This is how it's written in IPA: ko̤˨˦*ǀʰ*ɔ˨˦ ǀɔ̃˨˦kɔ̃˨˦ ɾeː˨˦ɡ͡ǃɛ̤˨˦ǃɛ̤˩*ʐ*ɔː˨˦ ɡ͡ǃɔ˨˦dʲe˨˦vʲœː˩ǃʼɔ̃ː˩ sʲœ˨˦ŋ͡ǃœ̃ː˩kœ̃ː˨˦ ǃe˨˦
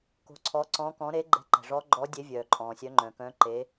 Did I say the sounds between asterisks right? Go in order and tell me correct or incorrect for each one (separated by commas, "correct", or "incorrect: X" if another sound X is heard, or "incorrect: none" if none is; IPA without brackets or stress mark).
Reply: correct, correct